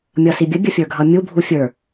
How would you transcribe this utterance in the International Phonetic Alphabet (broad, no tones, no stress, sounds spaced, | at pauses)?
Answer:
mʲ ʌ s i bʲ ə bʲ ə fʲ ə˞ ɡʱ ʌ mʲ u bʱ u fʲ ə˞